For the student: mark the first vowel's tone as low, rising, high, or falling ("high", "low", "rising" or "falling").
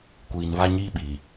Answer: low